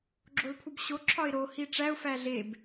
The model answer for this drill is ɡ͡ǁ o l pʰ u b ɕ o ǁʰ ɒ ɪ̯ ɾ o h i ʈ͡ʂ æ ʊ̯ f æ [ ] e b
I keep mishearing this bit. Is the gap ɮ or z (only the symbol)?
ɮ